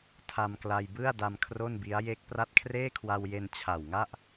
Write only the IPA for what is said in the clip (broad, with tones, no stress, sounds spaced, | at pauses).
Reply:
tʰ a˧ m k l a˧ j b ɯ˥˩ a̯ d a˧ m kʰ r o˥˩ n b i˦˥ a̯ j e˦˥ k̚ p r a˦˥ t̚ kʰ r eː˥˩ kʰ w a˧ w j e˧ n t͡ɕʰ a˨˩ w ŋ a˥˩ ʔ